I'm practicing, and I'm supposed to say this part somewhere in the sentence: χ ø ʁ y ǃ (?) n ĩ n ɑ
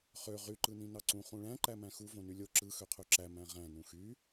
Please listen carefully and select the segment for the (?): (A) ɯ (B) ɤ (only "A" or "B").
A